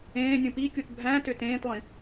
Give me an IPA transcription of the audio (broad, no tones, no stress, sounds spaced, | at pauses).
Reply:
ẽː nʲ ũ p i kʲ u t bʱ æ̃ t ø t ẽː t lˠ ĩ